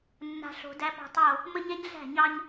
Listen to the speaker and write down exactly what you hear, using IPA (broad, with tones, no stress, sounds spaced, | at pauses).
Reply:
nː a̤˨ ɬ o̤˨ d æ˦ p ɑ̤˦ tˤ o˦˨ | m ə˦ ɲ ɛ˦ ɲ ɮ æ̤˦˨ ɲ ɑ˦ ɲ